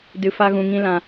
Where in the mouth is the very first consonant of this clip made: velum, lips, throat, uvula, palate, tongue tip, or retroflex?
tongue tip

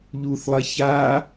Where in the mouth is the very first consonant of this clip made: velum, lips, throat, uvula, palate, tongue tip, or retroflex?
palate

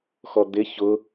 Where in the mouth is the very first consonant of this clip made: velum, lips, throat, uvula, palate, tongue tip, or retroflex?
velum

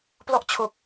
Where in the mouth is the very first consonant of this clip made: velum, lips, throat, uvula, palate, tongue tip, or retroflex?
lips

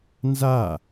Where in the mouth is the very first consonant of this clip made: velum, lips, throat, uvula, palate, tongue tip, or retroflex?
tongue tip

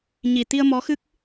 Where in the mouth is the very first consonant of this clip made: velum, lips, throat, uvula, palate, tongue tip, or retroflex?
palate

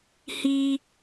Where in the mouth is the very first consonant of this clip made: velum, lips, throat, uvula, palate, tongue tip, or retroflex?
throat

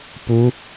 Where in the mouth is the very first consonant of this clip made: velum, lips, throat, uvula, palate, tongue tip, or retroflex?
lips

